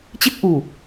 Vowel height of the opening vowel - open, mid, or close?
close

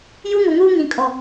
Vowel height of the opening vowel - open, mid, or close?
close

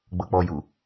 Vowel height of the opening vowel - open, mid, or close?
mid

